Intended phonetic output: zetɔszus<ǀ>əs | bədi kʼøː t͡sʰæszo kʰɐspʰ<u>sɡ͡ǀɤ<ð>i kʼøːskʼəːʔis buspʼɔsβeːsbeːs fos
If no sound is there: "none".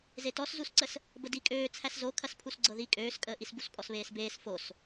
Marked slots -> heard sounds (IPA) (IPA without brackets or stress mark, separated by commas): ǀ, u, ð